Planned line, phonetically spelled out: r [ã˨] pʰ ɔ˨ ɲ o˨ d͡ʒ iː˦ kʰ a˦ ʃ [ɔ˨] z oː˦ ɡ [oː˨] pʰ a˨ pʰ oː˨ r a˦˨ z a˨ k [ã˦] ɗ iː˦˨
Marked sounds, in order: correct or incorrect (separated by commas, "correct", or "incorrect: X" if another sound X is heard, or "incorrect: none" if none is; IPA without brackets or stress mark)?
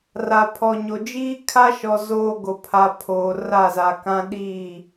incorrect: a˨, correct, incorrect: o˨, correct